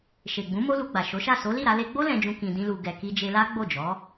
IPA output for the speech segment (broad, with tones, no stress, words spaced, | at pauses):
ʃe˨ɡ͡bũ˨˦ mo˦lu˧ɡ͡ba˨ ʃo˨˦ʃa˦˨ so˨˦li˦˨ɾa˧ le˧ɡ͡bo˦ lɛ̃˧d͡ʒũ˧ kĩ˧dĩ˦lu˧ ɡɛ˨ki˧d͡ʒe˧la˦ ɡ͡bo˦˨d͡ʒɔ˨˦